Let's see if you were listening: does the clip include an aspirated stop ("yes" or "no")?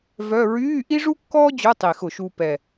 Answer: no